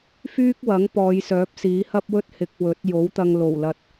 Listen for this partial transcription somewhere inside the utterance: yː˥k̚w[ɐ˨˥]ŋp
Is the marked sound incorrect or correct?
correct